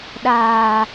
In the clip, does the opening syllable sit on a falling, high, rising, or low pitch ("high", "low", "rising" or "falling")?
low